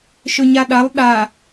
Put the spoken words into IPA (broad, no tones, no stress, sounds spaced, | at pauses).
ʃ ɵ ɲ a ɗ a lˠ ɗ a